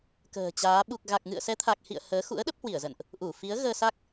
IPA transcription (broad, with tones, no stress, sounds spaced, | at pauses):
k ə̤ː˨˩ t͡ɕ aː˨˦ ɓ u˨˩ k̚ ɣ a˨˩ k̚ ŋ ɨ̰˧˨ ə̯ s ɛ˨˦ t̪ʰ a˨˩ k̚ h ḭ˧˨ ə̯ h əː˨˦ x ṵ˧˥ ə̯ ɗ ə˦˥ p̚ h w i˧˩ ə̯ z ə̰˧˨ n ʔ | ʔ u˧˩ f i˨˦ ə̯ ɣ əː˧ s a˦˥ k̚